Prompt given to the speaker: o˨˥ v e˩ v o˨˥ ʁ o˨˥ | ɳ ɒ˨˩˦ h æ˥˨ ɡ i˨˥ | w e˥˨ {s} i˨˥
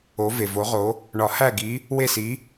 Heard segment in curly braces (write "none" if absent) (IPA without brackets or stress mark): s